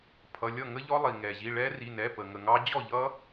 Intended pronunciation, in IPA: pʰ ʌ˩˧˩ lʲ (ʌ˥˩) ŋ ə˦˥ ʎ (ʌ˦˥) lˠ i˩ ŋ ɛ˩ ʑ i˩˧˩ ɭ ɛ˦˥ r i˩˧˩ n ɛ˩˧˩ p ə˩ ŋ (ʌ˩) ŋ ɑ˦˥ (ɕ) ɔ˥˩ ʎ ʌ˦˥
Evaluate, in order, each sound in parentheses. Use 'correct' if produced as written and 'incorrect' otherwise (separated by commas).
correct, incorrect, incorrect, incorrect